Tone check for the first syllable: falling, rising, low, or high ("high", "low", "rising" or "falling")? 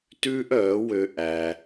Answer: high